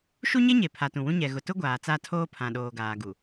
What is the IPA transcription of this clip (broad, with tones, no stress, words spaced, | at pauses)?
ʃu˦ɲe˦ ɲe˨ pʰa˨tũ˨wũ˦ ɲɛ˨ɣʊ˨tʊ˦ ɡʷaː˨t͡sa˦˨ tʰoː˦pʰã˨ɗoː˨ɡaː˨ ɡu˨